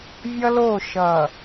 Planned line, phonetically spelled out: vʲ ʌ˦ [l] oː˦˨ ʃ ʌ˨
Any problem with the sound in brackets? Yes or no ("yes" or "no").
no